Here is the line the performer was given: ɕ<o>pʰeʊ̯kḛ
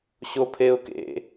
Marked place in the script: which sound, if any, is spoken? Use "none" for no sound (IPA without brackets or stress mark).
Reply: o